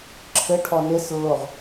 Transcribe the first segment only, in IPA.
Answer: ǁʰ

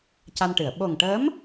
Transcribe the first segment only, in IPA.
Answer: c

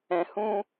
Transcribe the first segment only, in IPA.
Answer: ɛ̃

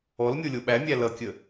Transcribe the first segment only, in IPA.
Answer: ɔ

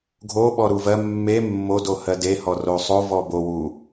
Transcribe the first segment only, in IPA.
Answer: ɡʱ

